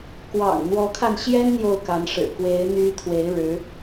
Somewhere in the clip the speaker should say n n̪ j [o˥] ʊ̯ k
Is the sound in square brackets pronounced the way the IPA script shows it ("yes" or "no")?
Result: no